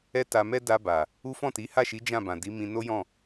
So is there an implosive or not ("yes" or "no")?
no